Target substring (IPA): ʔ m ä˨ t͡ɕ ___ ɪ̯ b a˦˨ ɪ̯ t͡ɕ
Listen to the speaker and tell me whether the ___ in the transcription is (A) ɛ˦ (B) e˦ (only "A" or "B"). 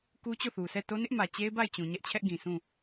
B